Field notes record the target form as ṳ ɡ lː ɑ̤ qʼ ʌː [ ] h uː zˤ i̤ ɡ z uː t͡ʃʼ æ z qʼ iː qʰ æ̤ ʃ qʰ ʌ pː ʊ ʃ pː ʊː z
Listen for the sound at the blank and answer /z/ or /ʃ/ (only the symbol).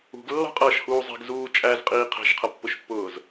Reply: ʃ